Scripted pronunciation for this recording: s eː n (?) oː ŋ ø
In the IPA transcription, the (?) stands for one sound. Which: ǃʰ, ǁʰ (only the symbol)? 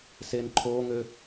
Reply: ǃʰ